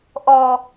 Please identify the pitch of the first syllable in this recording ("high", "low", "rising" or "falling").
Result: low